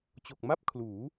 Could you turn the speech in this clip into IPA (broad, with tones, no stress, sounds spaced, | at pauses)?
t͡ɕ o˨˩ k̚ m a˥˩ p̚ kʰ l uː˩˦